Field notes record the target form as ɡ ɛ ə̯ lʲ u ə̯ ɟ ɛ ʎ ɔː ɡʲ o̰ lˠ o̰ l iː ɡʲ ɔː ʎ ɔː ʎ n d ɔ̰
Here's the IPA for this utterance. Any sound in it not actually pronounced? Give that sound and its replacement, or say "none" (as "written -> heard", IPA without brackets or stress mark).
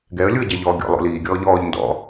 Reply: none